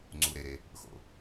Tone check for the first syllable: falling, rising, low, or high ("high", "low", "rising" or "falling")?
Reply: low